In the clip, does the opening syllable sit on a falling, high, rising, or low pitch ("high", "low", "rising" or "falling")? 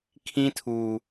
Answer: high